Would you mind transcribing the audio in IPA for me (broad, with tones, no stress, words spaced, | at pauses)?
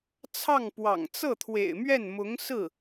t͡sʰɑ˥˩ŋpwɑ̰˨˩ŋ t͡sɤ˥˩t̪ʰwḛ˨˩ɪ̯mɥɛ˥˩nmʊ˧˥ŋ sɹ̩˥˩